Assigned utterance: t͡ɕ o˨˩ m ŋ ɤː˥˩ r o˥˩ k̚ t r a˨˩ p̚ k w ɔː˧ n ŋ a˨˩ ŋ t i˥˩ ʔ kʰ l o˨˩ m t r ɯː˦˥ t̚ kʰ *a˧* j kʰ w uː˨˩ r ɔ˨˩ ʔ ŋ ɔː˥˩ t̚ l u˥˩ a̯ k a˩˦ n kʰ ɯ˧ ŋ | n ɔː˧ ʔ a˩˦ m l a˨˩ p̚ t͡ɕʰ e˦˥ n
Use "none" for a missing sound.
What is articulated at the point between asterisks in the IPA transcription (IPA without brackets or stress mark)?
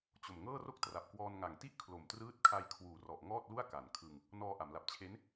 a˧